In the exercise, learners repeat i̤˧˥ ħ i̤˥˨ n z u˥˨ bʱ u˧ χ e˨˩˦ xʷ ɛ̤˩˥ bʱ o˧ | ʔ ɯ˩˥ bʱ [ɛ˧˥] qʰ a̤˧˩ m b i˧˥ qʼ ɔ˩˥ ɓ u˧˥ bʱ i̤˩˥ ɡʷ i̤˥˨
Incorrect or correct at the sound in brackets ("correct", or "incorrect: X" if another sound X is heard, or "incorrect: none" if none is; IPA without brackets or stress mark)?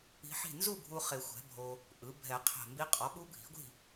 incorrect: ɛ˨˩˦